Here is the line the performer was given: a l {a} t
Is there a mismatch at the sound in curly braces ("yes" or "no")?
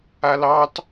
yes